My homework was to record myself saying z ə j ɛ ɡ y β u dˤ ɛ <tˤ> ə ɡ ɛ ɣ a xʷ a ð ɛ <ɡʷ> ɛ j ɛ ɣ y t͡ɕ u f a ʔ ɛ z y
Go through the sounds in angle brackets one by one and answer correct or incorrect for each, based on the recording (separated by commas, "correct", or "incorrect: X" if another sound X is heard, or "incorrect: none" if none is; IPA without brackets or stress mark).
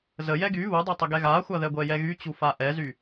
correct, correct